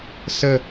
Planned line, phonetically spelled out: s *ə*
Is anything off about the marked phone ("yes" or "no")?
no